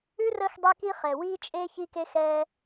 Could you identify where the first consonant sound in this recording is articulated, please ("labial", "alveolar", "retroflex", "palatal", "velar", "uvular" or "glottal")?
alveolar